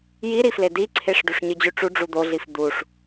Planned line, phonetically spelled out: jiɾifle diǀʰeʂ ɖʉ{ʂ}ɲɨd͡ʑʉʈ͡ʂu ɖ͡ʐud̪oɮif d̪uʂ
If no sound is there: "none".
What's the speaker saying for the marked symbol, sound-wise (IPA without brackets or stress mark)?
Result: ʂ